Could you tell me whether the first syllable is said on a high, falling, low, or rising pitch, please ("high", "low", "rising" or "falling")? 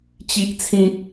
high